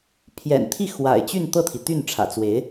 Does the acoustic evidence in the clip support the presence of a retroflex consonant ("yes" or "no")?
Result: yes